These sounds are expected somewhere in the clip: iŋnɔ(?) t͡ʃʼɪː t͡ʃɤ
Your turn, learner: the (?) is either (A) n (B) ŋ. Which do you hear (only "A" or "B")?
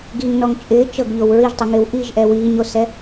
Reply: B